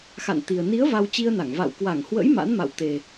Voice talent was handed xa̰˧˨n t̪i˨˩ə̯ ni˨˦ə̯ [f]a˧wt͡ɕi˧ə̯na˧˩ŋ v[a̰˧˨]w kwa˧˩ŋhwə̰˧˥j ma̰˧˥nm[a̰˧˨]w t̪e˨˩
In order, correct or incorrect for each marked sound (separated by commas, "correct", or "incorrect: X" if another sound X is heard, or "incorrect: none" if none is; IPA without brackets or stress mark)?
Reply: incorrect: v, correct, correct